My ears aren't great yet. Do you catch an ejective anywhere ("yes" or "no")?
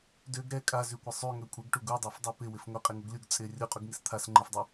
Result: yes